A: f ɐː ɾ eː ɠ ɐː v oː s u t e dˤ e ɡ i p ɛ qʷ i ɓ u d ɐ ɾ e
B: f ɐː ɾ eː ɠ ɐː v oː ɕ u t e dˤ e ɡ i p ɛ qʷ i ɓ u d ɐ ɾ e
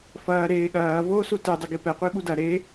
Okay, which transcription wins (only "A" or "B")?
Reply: A